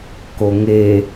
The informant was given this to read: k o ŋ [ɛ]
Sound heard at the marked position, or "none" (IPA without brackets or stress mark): e